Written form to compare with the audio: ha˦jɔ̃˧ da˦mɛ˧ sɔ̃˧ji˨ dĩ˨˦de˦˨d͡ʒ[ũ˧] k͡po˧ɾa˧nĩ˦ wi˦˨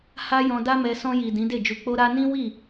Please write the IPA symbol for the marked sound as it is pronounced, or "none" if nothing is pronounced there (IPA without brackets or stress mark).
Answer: u˧